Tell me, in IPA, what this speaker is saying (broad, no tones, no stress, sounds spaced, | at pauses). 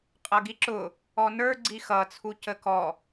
qʼ ʌ ɡ i ǁ ʊ | ɔ n ə˞ ɡ͡ǀ i x ʌ t͡sʰ u c ə k ɔ